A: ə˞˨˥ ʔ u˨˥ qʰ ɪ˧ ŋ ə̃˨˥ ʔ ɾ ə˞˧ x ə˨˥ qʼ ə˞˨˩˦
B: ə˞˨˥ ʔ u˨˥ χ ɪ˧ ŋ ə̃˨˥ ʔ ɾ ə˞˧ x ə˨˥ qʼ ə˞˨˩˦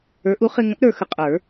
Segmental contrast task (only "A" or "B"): B